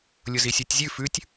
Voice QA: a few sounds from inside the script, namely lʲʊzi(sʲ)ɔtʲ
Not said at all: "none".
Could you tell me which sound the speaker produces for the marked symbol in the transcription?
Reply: sʲ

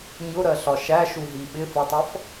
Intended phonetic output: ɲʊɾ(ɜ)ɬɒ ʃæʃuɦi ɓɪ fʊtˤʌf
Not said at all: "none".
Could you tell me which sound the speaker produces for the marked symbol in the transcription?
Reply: ɜ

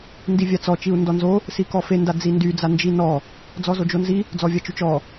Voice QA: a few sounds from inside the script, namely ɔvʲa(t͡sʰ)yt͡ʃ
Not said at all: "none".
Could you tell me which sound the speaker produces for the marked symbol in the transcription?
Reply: t͡ʃ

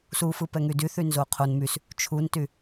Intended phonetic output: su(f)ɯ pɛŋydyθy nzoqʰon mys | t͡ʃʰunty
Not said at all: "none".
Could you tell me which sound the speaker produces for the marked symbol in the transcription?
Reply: f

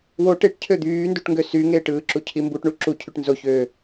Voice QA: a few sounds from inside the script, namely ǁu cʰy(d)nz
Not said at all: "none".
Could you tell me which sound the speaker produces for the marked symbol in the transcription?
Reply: ʈ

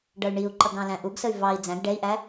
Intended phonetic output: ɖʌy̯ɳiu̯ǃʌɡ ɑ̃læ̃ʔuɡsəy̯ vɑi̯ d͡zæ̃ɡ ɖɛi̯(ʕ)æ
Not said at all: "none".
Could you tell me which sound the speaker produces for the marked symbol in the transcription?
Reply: ʔ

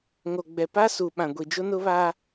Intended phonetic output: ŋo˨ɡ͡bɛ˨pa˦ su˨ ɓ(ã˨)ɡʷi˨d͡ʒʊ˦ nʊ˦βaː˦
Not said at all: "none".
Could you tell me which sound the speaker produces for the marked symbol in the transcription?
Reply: ã˨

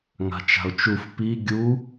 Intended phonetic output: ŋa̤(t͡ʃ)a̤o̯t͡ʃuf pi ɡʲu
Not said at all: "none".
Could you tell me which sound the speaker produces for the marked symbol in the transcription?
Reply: t͡ʃ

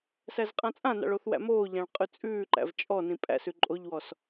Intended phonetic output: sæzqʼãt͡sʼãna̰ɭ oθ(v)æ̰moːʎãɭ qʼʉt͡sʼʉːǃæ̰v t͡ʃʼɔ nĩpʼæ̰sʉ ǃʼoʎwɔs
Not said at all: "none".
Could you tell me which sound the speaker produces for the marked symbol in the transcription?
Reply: w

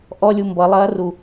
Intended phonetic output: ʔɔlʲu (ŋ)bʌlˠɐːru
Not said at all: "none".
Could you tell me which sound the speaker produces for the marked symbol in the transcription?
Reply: m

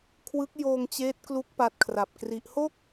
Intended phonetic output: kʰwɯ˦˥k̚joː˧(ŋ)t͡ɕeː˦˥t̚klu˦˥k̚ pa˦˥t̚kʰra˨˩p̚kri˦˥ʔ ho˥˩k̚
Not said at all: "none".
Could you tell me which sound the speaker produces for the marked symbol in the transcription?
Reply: ŋ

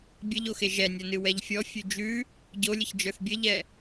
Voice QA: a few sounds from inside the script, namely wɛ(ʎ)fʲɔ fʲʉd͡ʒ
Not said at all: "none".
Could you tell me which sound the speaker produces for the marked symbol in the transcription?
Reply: ʎ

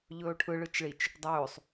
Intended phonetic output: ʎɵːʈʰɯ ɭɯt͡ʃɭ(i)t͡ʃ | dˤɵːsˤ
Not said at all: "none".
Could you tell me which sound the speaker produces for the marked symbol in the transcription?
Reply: i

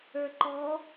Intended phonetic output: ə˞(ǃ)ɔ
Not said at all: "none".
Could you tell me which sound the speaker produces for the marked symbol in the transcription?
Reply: ǃ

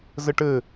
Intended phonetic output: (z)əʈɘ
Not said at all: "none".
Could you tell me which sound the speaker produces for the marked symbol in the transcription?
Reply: z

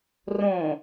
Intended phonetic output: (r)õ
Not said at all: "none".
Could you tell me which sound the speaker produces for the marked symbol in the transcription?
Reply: r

